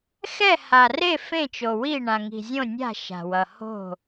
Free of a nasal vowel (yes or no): no